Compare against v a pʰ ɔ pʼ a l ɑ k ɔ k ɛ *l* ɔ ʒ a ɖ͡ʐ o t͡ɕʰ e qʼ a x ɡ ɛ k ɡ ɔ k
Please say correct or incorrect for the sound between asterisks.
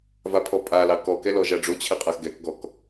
correct